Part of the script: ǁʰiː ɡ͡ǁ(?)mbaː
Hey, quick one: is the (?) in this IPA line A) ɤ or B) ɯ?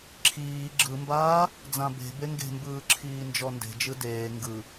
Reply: B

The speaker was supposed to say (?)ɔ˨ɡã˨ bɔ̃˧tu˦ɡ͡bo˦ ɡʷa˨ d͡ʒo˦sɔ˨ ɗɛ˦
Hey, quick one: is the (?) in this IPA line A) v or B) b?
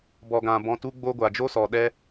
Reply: B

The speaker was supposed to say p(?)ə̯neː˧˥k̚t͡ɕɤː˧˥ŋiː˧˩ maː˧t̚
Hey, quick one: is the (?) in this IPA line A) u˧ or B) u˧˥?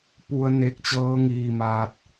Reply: A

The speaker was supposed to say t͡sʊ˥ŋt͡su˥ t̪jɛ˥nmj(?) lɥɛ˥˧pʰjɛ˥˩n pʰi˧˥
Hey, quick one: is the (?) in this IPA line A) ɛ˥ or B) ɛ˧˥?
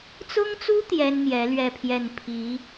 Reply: B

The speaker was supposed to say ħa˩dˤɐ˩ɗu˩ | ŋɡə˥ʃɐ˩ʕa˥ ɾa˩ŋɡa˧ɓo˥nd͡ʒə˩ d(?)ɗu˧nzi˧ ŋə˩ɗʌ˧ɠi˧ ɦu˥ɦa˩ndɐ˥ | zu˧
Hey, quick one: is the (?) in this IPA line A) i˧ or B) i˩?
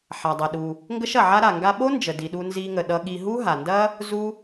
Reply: B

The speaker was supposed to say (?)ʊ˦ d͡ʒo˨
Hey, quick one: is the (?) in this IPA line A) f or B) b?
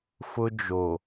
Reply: A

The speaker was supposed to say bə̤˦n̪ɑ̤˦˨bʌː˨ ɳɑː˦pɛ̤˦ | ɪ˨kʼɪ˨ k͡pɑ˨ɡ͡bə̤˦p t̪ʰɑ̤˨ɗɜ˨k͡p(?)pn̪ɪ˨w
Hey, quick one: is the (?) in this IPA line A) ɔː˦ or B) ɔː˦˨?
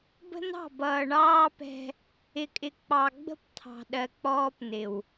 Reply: A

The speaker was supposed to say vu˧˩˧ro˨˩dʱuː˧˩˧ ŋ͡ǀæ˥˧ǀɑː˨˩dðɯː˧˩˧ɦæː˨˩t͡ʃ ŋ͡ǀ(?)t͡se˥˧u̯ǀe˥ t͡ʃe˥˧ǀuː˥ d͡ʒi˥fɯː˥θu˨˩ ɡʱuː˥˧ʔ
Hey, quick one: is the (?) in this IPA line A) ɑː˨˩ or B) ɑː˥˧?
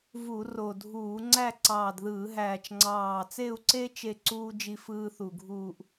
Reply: A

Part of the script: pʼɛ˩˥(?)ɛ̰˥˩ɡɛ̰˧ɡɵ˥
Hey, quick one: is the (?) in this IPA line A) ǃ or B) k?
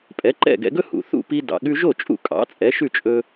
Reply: A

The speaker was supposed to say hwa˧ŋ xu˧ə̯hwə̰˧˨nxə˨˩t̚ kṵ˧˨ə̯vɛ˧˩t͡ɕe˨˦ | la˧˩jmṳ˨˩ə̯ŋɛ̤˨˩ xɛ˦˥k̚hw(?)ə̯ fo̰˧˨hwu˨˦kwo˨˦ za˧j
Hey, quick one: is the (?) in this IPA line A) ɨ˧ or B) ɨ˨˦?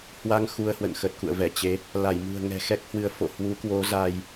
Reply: B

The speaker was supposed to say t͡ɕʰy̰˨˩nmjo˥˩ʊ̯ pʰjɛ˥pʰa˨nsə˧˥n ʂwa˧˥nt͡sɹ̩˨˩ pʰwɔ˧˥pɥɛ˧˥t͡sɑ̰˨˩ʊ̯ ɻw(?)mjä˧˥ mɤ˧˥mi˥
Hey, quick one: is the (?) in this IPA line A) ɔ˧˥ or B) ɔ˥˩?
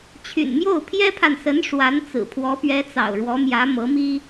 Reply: A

